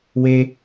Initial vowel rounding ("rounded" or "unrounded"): unrounded